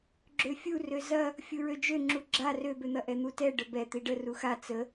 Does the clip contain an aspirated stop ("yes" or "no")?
no